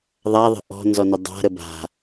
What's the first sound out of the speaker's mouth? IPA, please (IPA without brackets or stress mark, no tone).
ðˤ